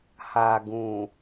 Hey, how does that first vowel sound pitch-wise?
low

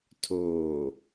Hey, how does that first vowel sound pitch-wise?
low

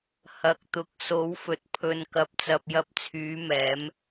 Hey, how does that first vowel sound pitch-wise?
low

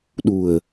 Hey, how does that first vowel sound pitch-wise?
low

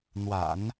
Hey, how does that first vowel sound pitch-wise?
low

